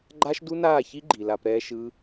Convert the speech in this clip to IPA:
ɡ͡ǃ a˦ ʃ d u˦ n aː˦˨ ç i˦ ɡ͡ǃ i˨ l a˧ p ɾ ɛː˧ ʃ ɯ˧

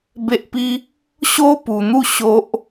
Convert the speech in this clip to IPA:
b e˦ ʔ p i˦ | ɕ o˦ p u˧ n̪ u˥˧ ɕ o˦ ʔ

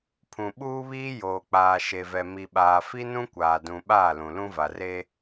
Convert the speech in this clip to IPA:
pʰ ũ˨ ɓ uː˦ β iː˦ j oː˨ k͡p aː˨ ʃ e˨ v ɛ˨ m i˨ ɓ aː˨ f i˦ n ũ˦ kʷ aː˨ d ũ˨ ɓ aː˦˨ l ũ˨ l ũ˦ v a˨ r e˦

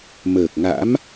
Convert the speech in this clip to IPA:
m əː˨˩ k̚ ŋ a̰˧˥ m

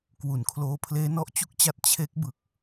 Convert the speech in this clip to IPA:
k w u˩˦ n kʰ l oː˧ pʰ l eː˦˥ n ɔ˦˥ ʔ t͡ɕ u˥˩ k̚ t͡ɕ a˦˥ t̚ t͡ɕʰ e˦˥ k̚ b ɯ˨˩ k̚

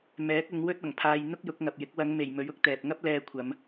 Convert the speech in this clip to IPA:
m ɛː˨˥ k̚ ʊ˨˧ ŋ w ɵ˥ t̚ ɐ˨˩ ŋ pʰ aː˧ j n̪ ʊ˥ k̚ j ʊ˨˥ k̚ ŋ ɐ˨ p̚ j ɪ˨˥ k̚ w ɐ˨˧ ŋ m e˨˩ j m ɵ˨˥ ɥ ʊ˥ k̚ t̪ ɛː˨ p̚ ŋ ɐ˥ p̚ l ɛː˧ kʷʰ ɐ˨˧ m

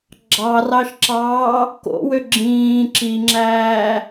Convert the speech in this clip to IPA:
ɡ͡ǁ ɑ r ɑ ʃ ǁ ɑː | k o̰ w ø ɡ͡ǁ ĩː ǁ i ŋ͡ǁ æː

